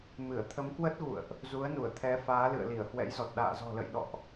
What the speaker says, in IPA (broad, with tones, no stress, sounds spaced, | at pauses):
m ɨ˧˩ ə̯ t̪ʰ ə˨˦ m k w ə˦˥ t̚ ɣ ṵ˧˨ ə̯ ʔ | z u˨˦ ə̯ n u˧˩ ə̯ t̪ʰ ɛ˨˦ f aː˨˦ l ɨ̰˧˨ ə̯ l i˧˩ ə̯ h w ɛ̰˧˥ j z ɔ˨˩ t̚ ɗ a̰ː˧˨ z ɔ̤˨˩ l ə̰˧˨ j ɗ ɔ̰˧˨ ʔ